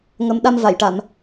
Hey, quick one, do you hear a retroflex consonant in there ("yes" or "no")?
yes